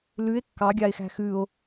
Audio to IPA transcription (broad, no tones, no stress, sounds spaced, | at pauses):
l ʉ e̯ kː ɑ ɡʲ ɑ e̯ x æ̤ x ʉ o̯